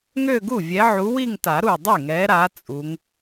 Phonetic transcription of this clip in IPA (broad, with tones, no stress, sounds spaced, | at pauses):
ŋ ø˥˧ ɡ u˥˩ vʲ ɛ˨˦ ʕ u˨˦ w i˥˧ ŋ t a˨˩˦ ɾ u˧˩ dˤ y˥˩ ŋ ɛ˨˦ ɾ a˨˦ t͡sʼ u˨˦ ŋ